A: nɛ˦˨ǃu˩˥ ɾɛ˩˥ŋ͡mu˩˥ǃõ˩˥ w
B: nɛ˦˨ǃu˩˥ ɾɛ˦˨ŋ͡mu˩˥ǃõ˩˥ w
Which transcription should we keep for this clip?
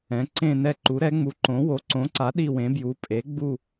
A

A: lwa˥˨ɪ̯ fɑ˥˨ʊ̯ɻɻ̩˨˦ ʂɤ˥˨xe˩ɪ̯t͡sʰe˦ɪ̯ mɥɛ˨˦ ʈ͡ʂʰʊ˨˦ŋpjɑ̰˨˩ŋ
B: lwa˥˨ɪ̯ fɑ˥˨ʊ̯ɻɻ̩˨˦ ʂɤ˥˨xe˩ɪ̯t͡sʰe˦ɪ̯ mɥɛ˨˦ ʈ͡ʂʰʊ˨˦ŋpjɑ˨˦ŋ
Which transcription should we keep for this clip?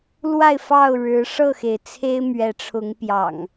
A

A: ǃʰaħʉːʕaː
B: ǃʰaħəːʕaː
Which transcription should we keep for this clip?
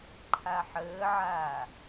B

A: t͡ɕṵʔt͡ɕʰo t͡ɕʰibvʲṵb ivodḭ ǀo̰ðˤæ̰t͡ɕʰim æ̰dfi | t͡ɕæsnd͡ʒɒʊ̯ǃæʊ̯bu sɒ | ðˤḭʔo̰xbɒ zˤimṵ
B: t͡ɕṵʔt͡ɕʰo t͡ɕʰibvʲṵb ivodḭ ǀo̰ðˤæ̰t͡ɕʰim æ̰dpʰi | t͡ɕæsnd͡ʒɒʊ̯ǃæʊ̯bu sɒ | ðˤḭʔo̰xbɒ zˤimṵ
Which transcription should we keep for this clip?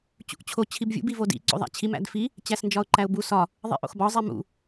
A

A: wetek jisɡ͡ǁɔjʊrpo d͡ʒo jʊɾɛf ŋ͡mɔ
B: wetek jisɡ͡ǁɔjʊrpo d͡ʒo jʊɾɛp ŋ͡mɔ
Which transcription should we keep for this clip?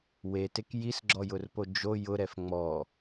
A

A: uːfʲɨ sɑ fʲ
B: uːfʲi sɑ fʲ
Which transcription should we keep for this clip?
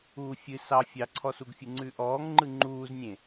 A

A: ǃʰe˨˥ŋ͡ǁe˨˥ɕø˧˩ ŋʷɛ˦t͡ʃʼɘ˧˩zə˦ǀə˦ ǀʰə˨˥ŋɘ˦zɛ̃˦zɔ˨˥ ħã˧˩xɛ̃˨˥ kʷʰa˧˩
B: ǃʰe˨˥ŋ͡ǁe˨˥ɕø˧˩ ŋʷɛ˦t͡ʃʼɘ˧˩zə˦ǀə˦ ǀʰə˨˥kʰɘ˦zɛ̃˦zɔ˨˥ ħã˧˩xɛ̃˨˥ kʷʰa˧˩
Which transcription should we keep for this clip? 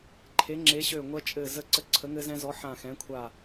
A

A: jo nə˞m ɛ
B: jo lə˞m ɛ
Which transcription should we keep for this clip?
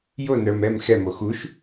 A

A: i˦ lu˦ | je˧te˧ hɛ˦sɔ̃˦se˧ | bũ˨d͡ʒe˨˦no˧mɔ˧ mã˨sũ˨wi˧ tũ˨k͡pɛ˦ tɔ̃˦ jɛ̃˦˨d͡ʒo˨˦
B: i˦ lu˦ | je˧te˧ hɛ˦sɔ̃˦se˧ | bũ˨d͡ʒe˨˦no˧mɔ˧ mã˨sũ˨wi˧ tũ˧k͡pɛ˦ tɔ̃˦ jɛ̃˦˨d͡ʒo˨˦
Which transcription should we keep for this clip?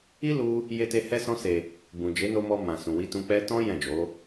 B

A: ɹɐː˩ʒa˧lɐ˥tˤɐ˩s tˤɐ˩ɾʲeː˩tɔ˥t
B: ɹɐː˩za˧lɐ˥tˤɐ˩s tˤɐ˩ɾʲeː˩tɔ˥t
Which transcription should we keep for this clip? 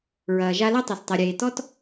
A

